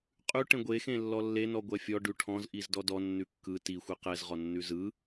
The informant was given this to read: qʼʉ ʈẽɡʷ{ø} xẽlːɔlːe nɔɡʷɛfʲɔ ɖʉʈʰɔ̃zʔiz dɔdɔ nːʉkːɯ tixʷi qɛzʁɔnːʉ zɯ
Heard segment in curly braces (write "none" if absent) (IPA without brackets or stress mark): e